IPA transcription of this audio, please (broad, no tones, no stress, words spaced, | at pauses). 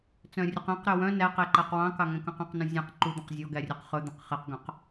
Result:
t͡sœ̃rʲʉqɛ̃qɾø wœ̃ næqe ǃæqwɑ̃kɑ ŋɛ̃kœ̃qɑ̃qnũ zʲɛ̃q ǃud̪œ̃q zʲɔɡæ rʲɛqχɵd̪ẽq χɛqɡœ̃q